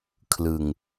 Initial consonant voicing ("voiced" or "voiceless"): voiceless